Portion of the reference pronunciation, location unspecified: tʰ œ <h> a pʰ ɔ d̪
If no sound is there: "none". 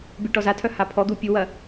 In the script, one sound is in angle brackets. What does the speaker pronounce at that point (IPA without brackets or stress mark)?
h